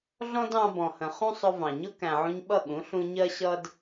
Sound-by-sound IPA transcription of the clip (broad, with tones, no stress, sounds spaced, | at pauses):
ɮ ɔ̃˦ d ɑ̃˧ b ɔ̃˨ h ə̃˨ χ ũ˦ sˤ ʊ˧ v ɑ̃˨ ɲ ʊ˦ k æ̃˨ ʕ ũ˧ ɲ ɓ ʌ˦˨ ɠ ũ˨˦ ɬ ũ˧ ɲ ɜ˦ ɕ ʌ˦ d